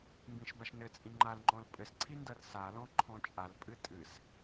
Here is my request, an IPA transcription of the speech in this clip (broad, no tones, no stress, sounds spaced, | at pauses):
m b ĩ ʃ b a ʃ n ɘ t͡sʼ ĩ ŋ͡ǃ a l ŋ͡ǃ ɔ̃ l pʼ ɘ s ǀʰ i n d ɐ r s a l ɔ̃ ǃʰ ɔ̃ t͡ʃʼ a l pʼ ɨ tʼ ɨ s